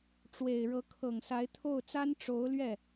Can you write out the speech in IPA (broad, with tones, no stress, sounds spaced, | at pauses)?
ʈ͡ʂ w e˨˩ ɪ̯ ɻ ɤ˧˥ kʰ ɤ˨˩ ŋ s a˧˥ ɪ̯ t̪ʰ o˥˩ ʊ̯ t͡s a˥ n ʈ͡ʂ o˧˥ ʊ̯ l ɥ ɛ˥˩